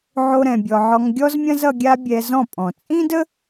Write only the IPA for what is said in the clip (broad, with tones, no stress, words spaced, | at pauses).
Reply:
ʕo˦ɾɛ̃˧bʲɔ˧ ʕɔ˧ŋɡʲɔ˦zmʲɐ̃˦z ʌ˧ɡʲa˦bʲɛ˧zɔ̃˦˨ pʼɔ̃˨t͡sʼĩ˦də˦